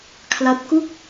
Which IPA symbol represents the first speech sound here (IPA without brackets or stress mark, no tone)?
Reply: kʰ